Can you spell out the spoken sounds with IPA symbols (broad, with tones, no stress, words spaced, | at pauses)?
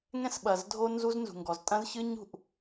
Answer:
ŋɛ̃˦sɓɐ˨zdʱo˦ nzu˦znzṳ˨ŋɡɔ˨z tʼɐ̃˦zçɨ˦ɲ ṳ˨ʔ